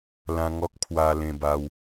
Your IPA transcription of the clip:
lã˧ŋɔ˦k̚ pʰwa˧lẽ˧ba˧w

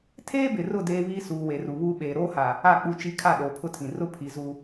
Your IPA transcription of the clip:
tʰeː˦bɪ˨rʊ˦˨ deː˦ βiː˦suː˨we˨ ru˨βuː˦ɓeː˨ ɾoː˦ha˨ | a˦˨k͡pu˦˨t͡ʃi˦ kʰa˦˨ɗoː˨ pʰʊ˦tʰĩ˨ rʊ˦ pʰi˨zu˨

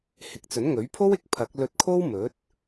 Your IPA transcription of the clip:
hɪ˨˥k̚t͡sɵ˨˥nŋɵ˨˥ɥpʰo˥w ɪ˨˥k̚pʰɐ˨˥k̚ lɵ˧t̚ kʰo˥wmɵ˨˥t̚

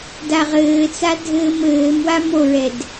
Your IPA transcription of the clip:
daʁɘːt͡sa dʱɘːmɘːmwam oɹɛd

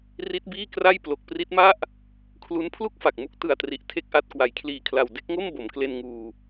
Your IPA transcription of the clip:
ri˦˥t̚biː˥˩kra˥˩j plo˨˩k̚pri˦˥t̚ma˥˩ʔ | kʰlu˦˥n pʰlu˥˩k̚fa˨˩k̚mu˦˥k̚ tɯ˨˩a̯tri˨˩ʔ tʰe˥˩k̚ʔa˥˩t̚ kwa˩˦jkʰliː˨˩kʰla˨˩w de˥˩k̚ŋo˥˩m bo˩˦mkle˧nŋuː˧

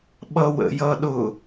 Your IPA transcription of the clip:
ɓʌwə̰jʌɗʊ

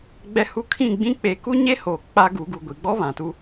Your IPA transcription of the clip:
ɡ͡bɛ˦hu˦ kʰĩ˦˨ɡ͡bĩ˦ k͡pe˨˦ku˦ɲe˦ho˨ k͡pa˦ɡu˨˦ ɡu˨ɡʷi˨ɡ͡bɔ˦ βã˨tu˦

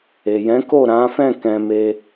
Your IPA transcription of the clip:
e˨ jɛ̃˨˦ko˦˨ɾã˨˦fɛ̃˦˨ kɛ̃˧me˦

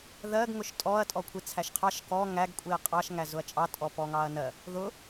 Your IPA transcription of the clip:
ðɜɡ ŋʊʃtʼɔɐ̯ tʼɔkʷʰit͡sʰæʃqʰɑʃ kɔ ŋæɡ kʷʼiɐ̯qʼɑʃ ŋæzʊɐ̯t͡ʃʼɑ tʼɔpɔŋɑɐ̯nɜ | ðʊ

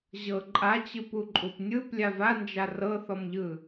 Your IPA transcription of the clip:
ʑɤ ǃʼat͡ɕɯpuǃʼup nʲɯp lʲavand͡ʒa rɤθɔmʎɯ

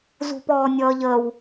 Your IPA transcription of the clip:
zṳpɔːnʲʌːʎəw

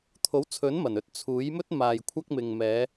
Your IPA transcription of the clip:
t̪ʰo˨˥wt͡sʰɵ˨˥nmɐ˨˩n ɵ˧t̚t͡sʰuː˨˥jmɵ˥t̚ maː˨j kʷʰɐ˧k̚mɪ˨ŋmɛː˨˧

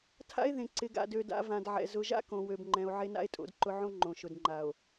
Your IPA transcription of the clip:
tʰa̰˦e̯ðẽ˨ ǀɪ˨ɡa̰˨dø˨ da̰˨ vã˨dʕɛ̰˨ zʊ˨ʒa̰˦kõ˨ wø˨bŋ͡ǃɛ̃˨o̯ ʕe˦na̰˦e̯tʼo̰˨˦dǃʊ˦ ʕõ˦ ŋ͡ǃõ˨ʃʊ˨d ŋ͡ǃa˨o̯

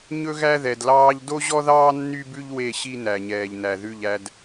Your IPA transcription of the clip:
ɲɵ˦ɣæ˦ðɛ˨dlɑː˦ʎ do˦ʑɔ˦ðɑː˦ nːy˦bʉ˦ʎ we˦˨ɕi˦ næ˨ɲɛː˨ʎnæ˨ ðʉ˦˨ʎæ˦d

